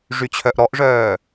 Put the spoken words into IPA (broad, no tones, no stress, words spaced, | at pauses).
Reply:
ʐyt͡ɕʰœʔɾɔʔʐœː